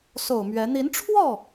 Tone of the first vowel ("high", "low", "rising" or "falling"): low